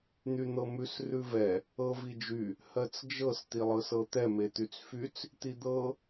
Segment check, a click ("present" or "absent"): absent